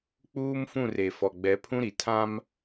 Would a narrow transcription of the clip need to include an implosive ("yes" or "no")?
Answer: no